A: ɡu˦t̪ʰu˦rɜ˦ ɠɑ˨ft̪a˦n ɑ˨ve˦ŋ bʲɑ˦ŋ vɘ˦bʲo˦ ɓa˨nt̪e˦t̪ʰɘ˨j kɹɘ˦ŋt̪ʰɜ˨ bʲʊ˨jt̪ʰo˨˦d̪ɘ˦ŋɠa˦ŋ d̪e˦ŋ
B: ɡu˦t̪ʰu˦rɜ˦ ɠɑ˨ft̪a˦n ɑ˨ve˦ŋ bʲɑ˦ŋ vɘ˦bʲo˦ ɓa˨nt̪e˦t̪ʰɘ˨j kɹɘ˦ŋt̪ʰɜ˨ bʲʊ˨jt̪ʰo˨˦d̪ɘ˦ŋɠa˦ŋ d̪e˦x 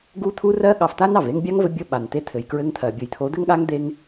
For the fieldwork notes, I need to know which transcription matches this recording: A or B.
A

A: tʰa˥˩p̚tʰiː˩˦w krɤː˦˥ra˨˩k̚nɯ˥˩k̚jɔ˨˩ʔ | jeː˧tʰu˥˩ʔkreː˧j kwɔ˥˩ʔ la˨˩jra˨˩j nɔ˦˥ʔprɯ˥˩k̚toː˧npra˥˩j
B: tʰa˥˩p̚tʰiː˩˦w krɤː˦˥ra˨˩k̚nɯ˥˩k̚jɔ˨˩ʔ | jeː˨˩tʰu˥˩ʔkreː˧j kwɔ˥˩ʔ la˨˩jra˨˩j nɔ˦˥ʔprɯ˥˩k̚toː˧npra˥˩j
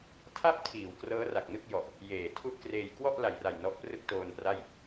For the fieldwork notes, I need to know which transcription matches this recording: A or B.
B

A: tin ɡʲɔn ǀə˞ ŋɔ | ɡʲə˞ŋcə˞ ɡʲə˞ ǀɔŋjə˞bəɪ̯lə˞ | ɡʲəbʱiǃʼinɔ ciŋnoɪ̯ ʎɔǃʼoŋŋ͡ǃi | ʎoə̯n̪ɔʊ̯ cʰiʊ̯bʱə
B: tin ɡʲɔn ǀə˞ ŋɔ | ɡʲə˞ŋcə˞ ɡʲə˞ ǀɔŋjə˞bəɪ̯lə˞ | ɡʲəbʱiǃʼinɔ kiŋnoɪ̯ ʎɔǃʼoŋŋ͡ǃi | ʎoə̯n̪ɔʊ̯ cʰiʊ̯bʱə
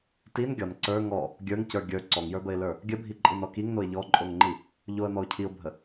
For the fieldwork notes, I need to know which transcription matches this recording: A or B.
B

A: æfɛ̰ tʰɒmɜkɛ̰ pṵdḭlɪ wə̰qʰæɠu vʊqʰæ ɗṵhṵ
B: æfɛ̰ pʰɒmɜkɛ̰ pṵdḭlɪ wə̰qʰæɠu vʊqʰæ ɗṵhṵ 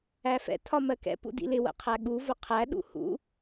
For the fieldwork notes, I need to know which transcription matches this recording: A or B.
A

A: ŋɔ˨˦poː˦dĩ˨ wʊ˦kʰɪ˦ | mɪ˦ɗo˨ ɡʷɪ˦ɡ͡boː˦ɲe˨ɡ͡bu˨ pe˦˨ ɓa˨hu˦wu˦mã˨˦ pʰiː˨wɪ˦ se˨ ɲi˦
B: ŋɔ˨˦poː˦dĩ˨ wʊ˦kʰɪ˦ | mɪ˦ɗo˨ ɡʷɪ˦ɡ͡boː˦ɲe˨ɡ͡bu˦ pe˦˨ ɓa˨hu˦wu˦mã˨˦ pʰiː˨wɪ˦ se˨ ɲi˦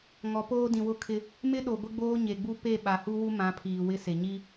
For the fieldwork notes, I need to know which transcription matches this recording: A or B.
B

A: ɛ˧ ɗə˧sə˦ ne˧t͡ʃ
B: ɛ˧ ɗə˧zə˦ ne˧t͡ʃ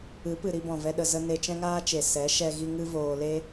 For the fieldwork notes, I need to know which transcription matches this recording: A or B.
B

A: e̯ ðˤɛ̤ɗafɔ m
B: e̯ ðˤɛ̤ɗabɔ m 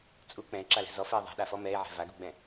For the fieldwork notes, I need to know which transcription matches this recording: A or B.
A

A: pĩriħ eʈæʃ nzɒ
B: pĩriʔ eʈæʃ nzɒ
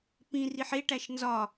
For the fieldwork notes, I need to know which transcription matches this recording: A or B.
A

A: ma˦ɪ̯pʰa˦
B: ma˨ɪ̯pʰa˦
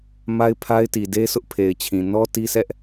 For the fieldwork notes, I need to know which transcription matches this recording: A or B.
A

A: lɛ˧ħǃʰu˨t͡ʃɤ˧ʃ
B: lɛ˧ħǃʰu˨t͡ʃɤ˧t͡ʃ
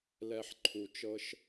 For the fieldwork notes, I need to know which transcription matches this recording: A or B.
A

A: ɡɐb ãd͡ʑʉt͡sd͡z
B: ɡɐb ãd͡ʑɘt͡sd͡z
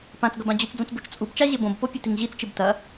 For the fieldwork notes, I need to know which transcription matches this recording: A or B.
A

